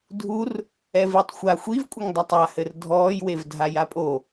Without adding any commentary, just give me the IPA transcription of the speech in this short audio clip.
dʱur | ɛvitˤxʷa xʷivkʷʼɘŋdˤatˤ ahɘr dʱɔːjwev dʱajapʼo

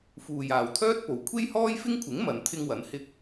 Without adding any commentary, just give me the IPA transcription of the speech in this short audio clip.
fuː˨jaː˨wt̪ʰœː˥t̚ po˨˧w kʷʰe˥jhɔː˥jfɪ˥ŋkʷʰɪ˨˥ŋ mɐ˨˧nt̪ʰɪ˥ŋ wɐ˨˥nhɪ˥k̚

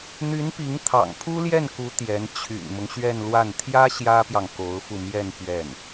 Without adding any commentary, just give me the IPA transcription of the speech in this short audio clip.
n̪y˧˥npi˧˥ŋt̪ʰɑ̰˨˩ŋ pʰu˥ljɛ˥˩nku˧˥ t̪jɛ˧˥n t͡ɕʰy̰˨˩nmʊ˦ŋɕɥɛ˥˧nlwa˥˩n t̪ʰjä˥ ɕjä˥pjɑ˨ŋ ko˧˥ʊ̯fu˧ mjɛ˥˧n pɥɛ˥˩n

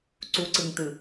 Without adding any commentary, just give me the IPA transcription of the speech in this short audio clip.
ǀuǀɯŋt̪ɯ

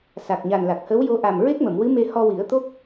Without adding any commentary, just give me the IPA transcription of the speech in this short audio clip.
sa˨˩k̚ɲa˨˩n la˨˩k̚hə˧˥wjo˧ ʔa˨˩m ɹe˦˥k̚mə˨˩˨mwɨ˧˥me˧ hɔ˧wi˨˩˦ə̯ t̪o˦˥k̚

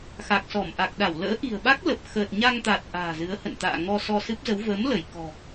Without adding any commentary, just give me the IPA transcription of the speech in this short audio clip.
xa˨˩k̚sɔ˧˩mʔa˨˩k̚ɗa˧˩w lə̰ː˧˥ʔi̤˨˩ə̯ɓa˦˥k̚lə˨˩p̚ xəː˨˩t̚ɲa˧ŋt̪a˨˩t̚ ʔa̤ː˨˩zɨ˨˦ə̯hə̰˧˨nt̪a̰ː˧˨ ŋɔ˧sɔ˧sɨ˦˥p̚zə˨˦w vəː˨˦m lə˧˩j kɔ̤˨˩

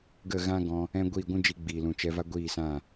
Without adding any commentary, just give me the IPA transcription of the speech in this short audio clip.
ɡə˦˨ɣã˦ɡɔ̃˧ | ɛ̃˦ ɡʷiː˦˨ɡʷũ˦d͡ʒi˧ ɡ͡biː˨lũ˨t͡ʃɛ˧va˦ ɡʷiː˦˨sã˦˨

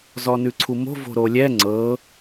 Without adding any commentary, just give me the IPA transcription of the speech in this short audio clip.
zɔnʉǀʰumo̤ vo̤ɾolʲɛ ŋ͡ǀɤ

